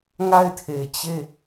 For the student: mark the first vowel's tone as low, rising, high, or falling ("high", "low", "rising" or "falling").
falling